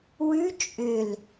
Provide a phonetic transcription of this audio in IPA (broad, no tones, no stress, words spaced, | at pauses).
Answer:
wʉ t͡ʃʼʏl